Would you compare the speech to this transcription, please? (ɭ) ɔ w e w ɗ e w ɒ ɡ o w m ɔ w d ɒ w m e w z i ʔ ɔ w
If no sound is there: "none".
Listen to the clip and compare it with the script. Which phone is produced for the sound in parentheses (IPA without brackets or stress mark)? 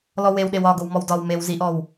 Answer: l